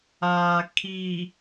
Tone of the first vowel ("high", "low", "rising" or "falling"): low